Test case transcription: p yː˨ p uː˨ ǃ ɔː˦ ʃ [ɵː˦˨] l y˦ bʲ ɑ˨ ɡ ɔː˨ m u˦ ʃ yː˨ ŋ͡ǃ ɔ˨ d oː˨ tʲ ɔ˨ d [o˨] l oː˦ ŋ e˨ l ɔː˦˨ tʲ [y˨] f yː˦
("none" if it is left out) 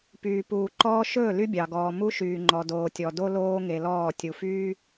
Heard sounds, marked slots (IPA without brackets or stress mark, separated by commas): ɵː˦˨, o˦, u˨